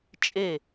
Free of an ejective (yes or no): no